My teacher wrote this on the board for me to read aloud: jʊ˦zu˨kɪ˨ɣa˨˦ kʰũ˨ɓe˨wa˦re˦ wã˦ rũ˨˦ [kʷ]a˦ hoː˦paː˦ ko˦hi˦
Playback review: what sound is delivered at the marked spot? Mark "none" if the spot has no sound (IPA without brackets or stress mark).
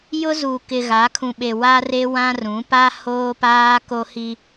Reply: p